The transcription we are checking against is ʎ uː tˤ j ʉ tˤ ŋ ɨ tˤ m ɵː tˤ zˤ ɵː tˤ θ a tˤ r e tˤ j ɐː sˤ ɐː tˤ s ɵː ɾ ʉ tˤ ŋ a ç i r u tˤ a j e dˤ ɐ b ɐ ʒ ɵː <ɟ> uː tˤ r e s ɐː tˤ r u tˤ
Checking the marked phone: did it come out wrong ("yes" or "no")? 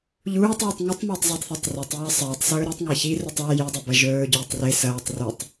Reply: no